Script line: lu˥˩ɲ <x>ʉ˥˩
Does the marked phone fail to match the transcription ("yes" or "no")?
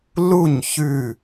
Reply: yes